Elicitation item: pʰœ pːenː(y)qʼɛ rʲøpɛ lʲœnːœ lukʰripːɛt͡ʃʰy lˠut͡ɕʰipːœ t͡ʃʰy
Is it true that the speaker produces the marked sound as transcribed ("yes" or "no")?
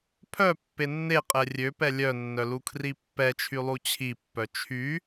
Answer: no